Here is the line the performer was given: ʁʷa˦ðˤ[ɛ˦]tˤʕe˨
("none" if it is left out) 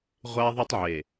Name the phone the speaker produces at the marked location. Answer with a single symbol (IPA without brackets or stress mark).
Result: ɛ˦